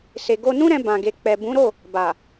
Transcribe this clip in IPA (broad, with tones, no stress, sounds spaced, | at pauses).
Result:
s e˨ ɡ o˧ n ũ˦ ɾ ɛ̃˧ b ã˨ ɡ e˨ k͡p ɛ˨ b ũ˨˦ ɾ o˦˨ | b a˨